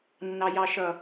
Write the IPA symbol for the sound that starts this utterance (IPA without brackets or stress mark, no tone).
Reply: nː